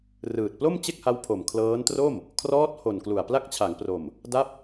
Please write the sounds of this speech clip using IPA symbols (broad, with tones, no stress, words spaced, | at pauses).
rɯː˨˩t̚plo˥˩mt͡ɕe˥˩k̚ha˦˥w pʰo˨˩mkʰlɤː˦˥ntro˥˩m | kʰrɔː˦˥t̚ho˨˩nklu˨˩a̯ pla˦˥k̚t͡ɕʰa˩˦ŋpro˨˩m | da˦˥p̚